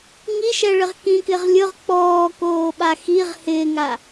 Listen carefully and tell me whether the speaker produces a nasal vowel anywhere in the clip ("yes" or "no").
yes